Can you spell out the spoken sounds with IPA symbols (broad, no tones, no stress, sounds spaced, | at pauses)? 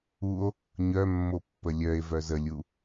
u o̯ | ɲ œ mː o pː ə lʲ œ e̯ v œ z ə lʲ u